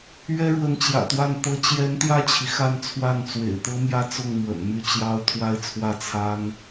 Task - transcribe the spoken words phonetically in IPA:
ɥ ɛ˥ ɻ w ə˧˥ n t͡ɕ j ä̰˨˩ t̪ w a˥˩ n t̪ ɤ˧˥ t͡ɕ j ɛ˧˥ n t̪ j ä˥˩ t͡ɕʰ i˩ x a˥˧ n t͡sʰ w a˥˩ n t͡s w ḛ˨˩ ɪ̯ t̪ ɤ˥ m j ä˥ t͡s ʊ˥˩ ŋ m w ə̰˨˩ n m y˥˩ t͡ɕ j ɑ˥ ʊ̯ t̪ʰ w a˥˧ ɪ̯ t͡sʰ w ä˥˩ t͡sʰ a˥ n

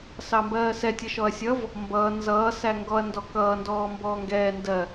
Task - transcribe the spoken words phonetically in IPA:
s ɑ m b ɜː s ɛ tʲ ə ʃ ɔ ɐ̯ sʲ ʌ v | m b ʌː n z ʌː s æ ŋ ɡ ɔ ɐ̯ n d ɔ k ʌː n d ɔː m b ɔː ŋ ɡ ɛː n d ɜ

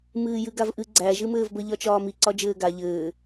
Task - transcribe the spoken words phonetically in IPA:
m ɨː j ɨ ɡ a v ʔ ɨ ɡ͡ǀ æ ʒ ɨ m ɘː v b ə ʎ ɒ t͡ʃ ɒː m i ǀ ɒ d͡ʒ ɘː ɡ a ʎ ɘː

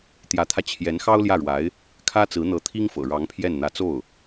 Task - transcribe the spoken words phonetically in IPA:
t̪ j ä˧˥ t̪ʰ ä˧ t͡ɕʰ j ɛ˧˥ n x ɑ˥ ʊ̯ l j ä˥˩ ɻ w a˧˥ ɪ̯ | kʰ ä˥ t͡s ɹ̩˧˥ n̪ ɤ˧˥ t̪ʰ i˥ ŋ f ɤ̰˨˩ ɻ ɑ˧˥ ŋ pʰ j ɛ˥˩ n n̪ ä˧˥ t͡s o˥˩ ʊ̯

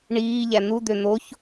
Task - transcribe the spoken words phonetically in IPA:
ɳ iː ʎ æ n̪ u d̪ ø n̪ o ç

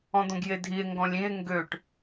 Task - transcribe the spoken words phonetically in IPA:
ɔ̃ d̪ õ ɡ j e dʱ i e̯ ŋ ɡ ɔ̃ lʲ ĩ e̯ ŋ ɡ ø ʈ

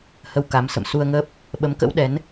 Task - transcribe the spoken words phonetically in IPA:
h ə˧ w k a˨˦ m s ə̰˧˨ m s u˧ ə̯ ŋ əː˦˥ p̚ | ɓ ə˨˦ m k ə̰˧˥ w ɗ ɛ˨˦ n

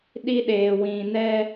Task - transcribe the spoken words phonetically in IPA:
ɗ i˦ ɗ eː˨ w ĩ˨ n ɛ˦

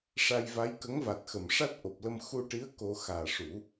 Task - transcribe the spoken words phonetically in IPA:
ʂ a˧ j v a˧˥ j k ə˧˥ ŋ v a˨˩ t̚ x ə˨˩ m ʂ a˦˥ t̚ ʔ o˨˩ p̚ l ə˧ m x u˧ ʈ i˧˥ ə̯ k o˧ x aː˨˩ ʂ u˨˩˦

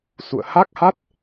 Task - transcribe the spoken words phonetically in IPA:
s ṵ˧˨ ə̯ h a˦˥ k̚ h a˦˥ t̚

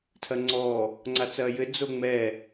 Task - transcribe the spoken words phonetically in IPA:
tʰ ɐ ŋ͡ǀ ɔː | ŋ͡ǀ a t͡s ɐː j ɘ d͡z o ŋ͡m ɛː

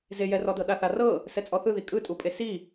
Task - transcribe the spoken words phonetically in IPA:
z e j ɛ r ɔ d ɤ ɗ a θ a r ɤ | s ɛ t͡sʼ ɔ θ ɯ ð i kʼ ɯ tʼ u pʼ e s i

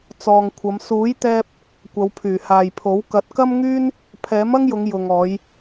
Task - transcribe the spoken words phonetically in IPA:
t͡s ɔː˨ ŋ kʷʰ ɐ˨˧ m s uː˨˥ j t̪ ɛː˧ p̚ | kʷ ɐ˨˧ w pʰ yː˨˩ h aː˨ j pʰ o˨˥ w k ɐ˨˥ t̚ k ɐ˥ m ŋ yː˥ n | pʰ ɛː˨˥ m ɐ˥ ŋ j ʊ˨˧ ŋ j ʊ˨ ŋ ɔː˨˧ j

